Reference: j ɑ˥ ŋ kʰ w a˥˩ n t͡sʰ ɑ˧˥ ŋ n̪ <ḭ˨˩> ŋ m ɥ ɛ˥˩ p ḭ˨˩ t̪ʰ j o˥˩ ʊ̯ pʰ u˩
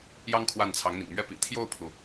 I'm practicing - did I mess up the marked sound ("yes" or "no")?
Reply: no